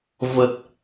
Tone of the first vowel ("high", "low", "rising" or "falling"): low